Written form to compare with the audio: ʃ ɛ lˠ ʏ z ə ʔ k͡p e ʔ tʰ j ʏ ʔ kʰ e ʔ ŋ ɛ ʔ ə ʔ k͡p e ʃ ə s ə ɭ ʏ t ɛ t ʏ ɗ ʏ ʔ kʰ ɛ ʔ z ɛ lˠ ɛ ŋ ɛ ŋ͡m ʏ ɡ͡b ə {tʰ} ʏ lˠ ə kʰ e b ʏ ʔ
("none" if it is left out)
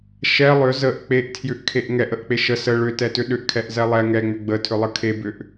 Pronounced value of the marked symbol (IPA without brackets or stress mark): tʰ